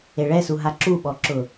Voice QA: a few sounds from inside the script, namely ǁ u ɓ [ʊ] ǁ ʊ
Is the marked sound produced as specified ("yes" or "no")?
no